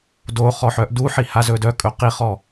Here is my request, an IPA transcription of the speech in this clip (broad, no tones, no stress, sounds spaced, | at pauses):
d o χ ɔ ħ œ ʔ d u ħ i h a z ɵ d œ kʼ ɵ q i χ ɔ